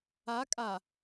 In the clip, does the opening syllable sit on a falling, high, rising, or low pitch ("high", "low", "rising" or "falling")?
rising